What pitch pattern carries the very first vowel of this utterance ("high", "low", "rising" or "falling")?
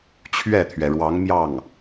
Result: falling